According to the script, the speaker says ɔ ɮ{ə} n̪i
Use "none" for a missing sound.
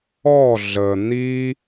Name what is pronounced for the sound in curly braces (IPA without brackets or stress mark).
ə